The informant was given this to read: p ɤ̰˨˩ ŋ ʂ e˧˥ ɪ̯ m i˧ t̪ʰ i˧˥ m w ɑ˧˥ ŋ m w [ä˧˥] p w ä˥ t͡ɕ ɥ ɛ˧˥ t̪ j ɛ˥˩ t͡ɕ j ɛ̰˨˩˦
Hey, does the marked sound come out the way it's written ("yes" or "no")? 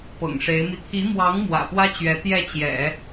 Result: no